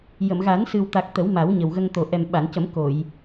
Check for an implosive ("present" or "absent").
present